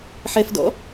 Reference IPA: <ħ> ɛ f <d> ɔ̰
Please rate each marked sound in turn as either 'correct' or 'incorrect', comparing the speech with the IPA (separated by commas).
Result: correct, correct